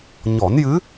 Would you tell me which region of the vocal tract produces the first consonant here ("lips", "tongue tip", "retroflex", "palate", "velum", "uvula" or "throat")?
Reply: palate